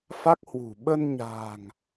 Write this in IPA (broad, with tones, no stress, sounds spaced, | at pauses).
f a˦˥ k̚ h w ṳ˨˩ ɓ ə˧ n ɲ a̤ː˨˩ ŋ